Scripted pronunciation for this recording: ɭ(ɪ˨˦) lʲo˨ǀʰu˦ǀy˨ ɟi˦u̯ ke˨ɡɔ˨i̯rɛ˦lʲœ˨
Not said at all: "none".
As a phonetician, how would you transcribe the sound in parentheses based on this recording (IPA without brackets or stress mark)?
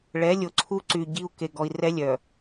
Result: ɛ˨˦